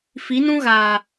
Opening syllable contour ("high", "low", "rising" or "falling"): rising